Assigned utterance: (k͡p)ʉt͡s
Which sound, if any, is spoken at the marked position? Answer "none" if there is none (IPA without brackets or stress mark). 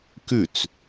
k